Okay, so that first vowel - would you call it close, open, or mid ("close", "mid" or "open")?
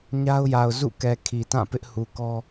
open